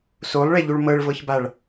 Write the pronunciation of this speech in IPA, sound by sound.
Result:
s o lˠ ɭ e ʎ u ɭ m ɤ ɭ v ɤ ç b a ɭ

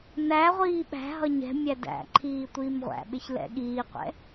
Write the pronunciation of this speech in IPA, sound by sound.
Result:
n æ ʁʷ iː ɓ æ̤ ɦ ʌ ɲ ɛ̤ mʲ æ d æ̰ ǃʰ iː tʷ iː m ʁʷ æ̰ ɓ ɪ ç l ɛ̰ ɠ iː qʷ ɛ̰

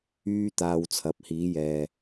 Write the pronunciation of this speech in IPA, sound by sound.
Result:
yː˥ t̪ aː˧ w t͡sʰ ɐ˨˥ p̚ h iː˨˥ j ɛː˨

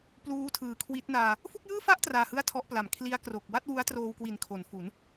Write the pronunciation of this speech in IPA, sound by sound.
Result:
p l uː˦˥ tʰ ɯː˨˩ kʰ w i˦˥ t̚ n aː˧ | f u˥˩ k̚ j ɯː˥˩ f a˥˩ ʔ t r aː˧ h ɯ˥˩ a̯ tʰ ɔ˦˥ ʔ p l a˨˩ m kʰ l i˦˥ a̯ k r o˨˩ k̚ w a˥˩ t̚ w u˦˥ a̯ t r oː˧ w k w i˨˩ n kʰ o˩˦ n f u˩˦ n

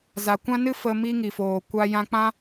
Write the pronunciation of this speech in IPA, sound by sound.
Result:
z a˨ kʷ ã˦ n ɨ˦ f ə˧ m i˦ ŋ i˨ f oː˨ kʷ a˦ j ã˧ k͡p ã˦

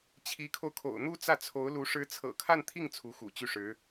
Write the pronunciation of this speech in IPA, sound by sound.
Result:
t͡ɕʰ i˧˥ kʰ o˧ ʊ̯ kʰ o̰˨˩ ʊ̯ n̪ u˥ t͡s ä˥˩ t͡sʰ o˧˥ ʊ̯ l u˧˥ ʂ ɻ̩˧˥ t͡sʰ ɤ̰˨˩ kʰ a˥˧ n t̪ʰ i˥˩ ŋ t͡sʰ u˧˥ x ṵ˨˩ t͡ɕ y˥˩ ʂ ɻ̩˧˥

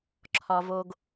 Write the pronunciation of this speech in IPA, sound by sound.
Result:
ǁʰ ɒ˨ v o˨ ɡ

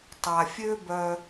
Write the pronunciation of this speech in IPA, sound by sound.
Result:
tˤ a˩ fʲ ø˦ b œ˨

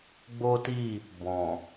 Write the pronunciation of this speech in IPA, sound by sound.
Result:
ɡ͡b o˦ t i˦˨ | b ɔ̃˨

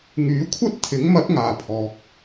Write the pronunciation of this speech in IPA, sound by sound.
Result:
ŋ yː˨˥ kʷʰ ɐ˥ t̚ t̪ʰ ɪ˨˥ ŋ m ɐ˨˥ t̚ ŋ aː˨ pʰ ɔː˨ k̚

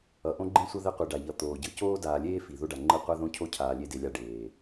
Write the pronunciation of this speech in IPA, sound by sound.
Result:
ʌ˨ ʔ õ˦ ɡ͡ǃ ĩ˦ sʷ ʌ˦ ð ɛ˦ qʷ i˨ ɖ a˨ ʎ ʌ˨˦ t̪ oː˨ ɟ ɯ˦ c oː˦ d aː˨ lʲ eː˦ f i˨ ð o˦ ɖ a˨ ŋ͡ǃ ɯ˦ qʷ a˦ ð õ˦ cʰ o˦ cʰ aː˨ lʲ e˦ d e˨ lʲ a˦ ɖ eː˨

